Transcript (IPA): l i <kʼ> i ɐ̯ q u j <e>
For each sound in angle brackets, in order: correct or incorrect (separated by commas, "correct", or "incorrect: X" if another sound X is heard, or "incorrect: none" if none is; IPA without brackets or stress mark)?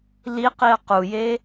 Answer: incorrect: q, correct